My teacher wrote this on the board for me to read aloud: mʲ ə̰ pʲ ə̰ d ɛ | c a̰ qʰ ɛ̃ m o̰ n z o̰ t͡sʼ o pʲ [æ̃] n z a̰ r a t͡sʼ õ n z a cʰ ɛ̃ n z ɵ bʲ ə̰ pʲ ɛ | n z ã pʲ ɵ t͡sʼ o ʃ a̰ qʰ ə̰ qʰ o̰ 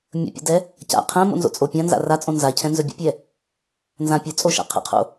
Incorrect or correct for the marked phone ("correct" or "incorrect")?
incorrect